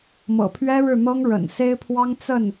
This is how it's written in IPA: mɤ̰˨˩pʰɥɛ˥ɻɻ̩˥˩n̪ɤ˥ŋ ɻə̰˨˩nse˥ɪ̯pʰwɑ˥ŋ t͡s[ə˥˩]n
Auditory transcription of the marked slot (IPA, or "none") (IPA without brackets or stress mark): ə˥˩